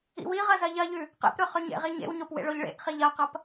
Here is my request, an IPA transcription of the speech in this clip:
ḭ w i ʁ ɐ z ɐ ʎ ɐ ʎ ʉ | q ḛ p ɾ ɵ χ ɵ ɲ ḛ ʁ i ɲ ḛ w ɲ o p w ḛ ɭ o ʎ ɭ ḛ ʔ χ i ʎ ɐ q ɐ p

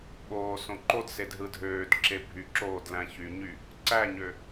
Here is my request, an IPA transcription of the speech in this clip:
ɓ oː s õ ǃ o d s e d ɦ ɯ dʱ øː d ǁ e bʱ y ǁ oː d l æ̃ ç y ɲ y | ǀ æ ɲ ø

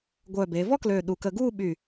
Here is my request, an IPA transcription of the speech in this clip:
ɡʷ œː˧˩ b e˩˧ v ɔ˥ k l øː˧˩ ɗ u˧˩ k əː˧ ɡ uː˥˧ ɓ y˧˩

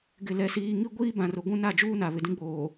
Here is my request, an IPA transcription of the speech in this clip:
ɡ ɪ˦˨ l ɛ˦ s iː˦ ŋ i˦ ɡʷ iː˦ b ã˨ r ʊ˨ ɡʷ ũ˦ n a˦˨ d͡ʒ uː˦ n a˨ β ɪ˨ d ĩ˦ ɡ͡b oː˨

